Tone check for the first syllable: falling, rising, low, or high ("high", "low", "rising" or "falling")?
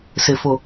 low